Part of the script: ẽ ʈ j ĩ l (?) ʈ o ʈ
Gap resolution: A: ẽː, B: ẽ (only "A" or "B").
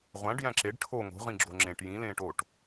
A